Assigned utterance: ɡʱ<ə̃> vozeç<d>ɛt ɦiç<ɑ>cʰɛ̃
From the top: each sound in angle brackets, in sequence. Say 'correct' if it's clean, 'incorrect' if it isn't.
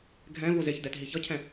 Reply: incorrect: ɛ̃, correct, incorrect: ʌ

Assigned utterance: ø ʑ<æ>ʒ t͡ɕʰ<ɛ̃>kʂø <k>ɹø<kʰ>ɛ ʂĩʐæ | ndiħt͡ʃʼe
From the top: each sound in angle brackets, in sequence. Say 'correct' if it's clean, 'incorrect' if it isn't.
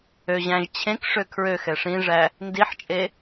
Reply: incorrect: æ̃, incorrect: ẽ, incorrect: kʰ, incorrect: x

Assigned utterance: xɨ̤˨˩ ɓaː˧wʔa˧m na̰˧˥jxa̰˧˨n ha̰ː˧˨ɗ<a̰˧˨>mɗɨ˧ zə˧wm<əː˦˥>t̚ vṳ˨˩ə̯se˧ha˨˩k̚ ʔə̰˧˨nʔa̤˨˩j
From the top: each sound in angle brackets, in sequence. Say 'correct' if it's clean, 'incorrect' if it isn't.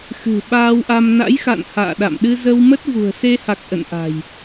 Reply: correct, incorrect: ə˦˥

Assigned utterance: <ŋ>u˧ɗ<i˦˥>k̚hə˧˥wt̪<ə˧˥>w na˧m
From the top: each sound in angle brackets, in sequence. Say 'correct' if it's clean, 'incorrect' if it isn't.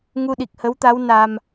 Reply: correct, incorrect: i˨˩, incorrect: a˧˥

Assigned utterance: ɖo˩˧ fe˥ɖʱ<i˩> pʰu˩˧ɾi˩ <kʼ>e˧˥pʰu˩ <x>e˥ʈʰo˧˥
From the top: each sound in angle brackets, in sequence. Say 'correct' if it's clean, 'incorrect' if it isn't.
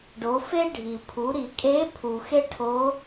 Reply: correct, correct, correct

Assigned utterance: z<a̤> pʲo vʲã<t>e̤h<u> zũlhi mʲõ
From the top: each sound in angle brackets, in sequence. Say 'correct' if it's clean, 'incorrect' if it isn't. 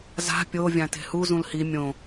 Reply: correct, correct, correct

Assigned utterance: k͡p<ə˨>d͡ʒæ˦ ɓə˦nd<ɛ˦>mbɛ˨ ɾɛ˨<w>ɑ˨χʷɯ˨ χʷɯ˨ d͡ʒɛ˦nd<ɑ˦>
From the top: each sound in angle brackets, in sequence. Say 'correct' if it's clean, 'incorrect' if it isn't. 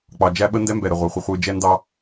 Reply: incorrect: ɑ˨, correct, incorrect: ʁʷ, correct

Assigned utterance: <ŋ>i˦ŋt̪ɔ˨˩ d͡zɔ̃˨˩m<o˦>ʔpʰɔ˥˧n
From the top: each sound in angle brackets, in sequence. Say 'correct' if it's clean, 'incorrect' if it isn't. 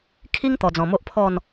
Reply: incorrect: kʰ, correct

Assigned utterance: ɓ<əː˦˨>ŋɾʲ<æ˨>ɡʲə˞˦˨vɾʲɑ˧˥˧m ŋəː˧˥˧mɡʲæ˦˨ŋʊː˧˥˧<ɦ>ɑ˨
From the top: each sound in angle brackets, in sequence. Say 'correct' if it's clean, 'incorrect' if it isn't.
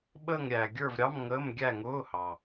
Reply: correct, correct, incorrect: h

